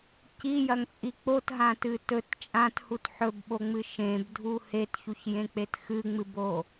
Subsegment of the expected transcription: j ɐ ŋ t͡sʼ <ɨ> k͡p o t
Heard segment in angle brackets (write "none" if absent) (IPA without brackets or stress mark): i